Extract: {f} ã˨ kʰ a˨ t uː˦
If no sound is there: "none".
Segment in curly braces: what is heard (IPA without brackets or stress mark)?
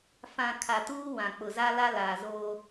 f